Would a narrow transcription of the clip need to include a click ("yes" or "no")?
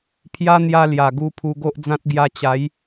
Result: no